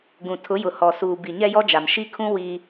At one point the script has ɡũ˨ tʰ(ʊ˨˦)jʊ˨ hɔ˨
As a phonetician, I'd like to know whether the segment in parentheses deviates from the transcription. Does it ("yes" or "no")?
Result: no